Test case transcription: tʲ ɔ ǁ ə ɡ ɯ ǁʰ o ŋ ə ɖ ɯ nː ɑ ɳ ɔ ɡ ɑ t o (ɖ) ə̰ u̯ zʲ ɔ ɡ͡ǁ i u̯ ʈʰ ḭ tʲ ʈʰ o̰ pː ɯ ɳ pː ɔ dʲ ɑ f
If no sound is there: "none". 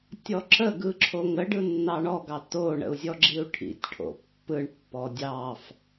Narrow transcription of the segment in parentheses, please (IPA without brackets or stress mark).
ɳ